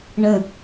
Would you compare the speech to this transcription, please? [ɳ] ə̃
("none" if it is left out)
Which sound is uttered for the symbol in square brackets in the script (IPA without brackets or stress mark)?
ɳ